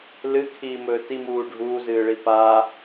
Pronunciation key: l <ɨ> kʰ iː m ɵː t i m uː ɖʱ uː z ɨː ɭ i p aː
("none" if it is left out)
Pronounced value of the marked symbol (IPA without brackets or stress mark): ɨ